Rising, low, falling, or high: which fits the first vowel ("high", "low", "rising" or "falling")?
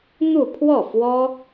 falling